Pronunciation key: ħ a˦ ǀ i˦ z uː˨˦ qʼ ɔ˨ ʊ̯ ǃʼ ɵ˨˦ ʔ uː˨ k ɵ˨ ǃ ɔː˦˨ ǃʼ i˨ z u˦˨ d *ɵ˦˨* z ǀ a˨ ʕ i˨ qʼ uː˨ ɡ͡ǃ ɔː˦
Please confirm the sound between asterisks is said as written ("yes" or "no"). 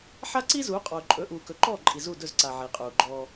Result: yes